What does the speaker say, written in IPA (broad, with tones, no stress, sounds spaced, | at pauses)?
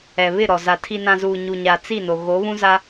ɛ˨ β ɪ˦˨ ɾ ɔ˨ z a˨ tʰ i˨ n ã˨ z uː˨ ɲ u˨ ɲ a˨ t͡s i˦˨ n o˨ ɣ o˨˦ β ũ˦ z a˦